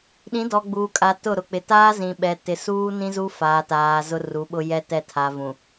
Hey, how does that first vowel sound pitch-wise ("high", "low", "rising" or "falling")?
rising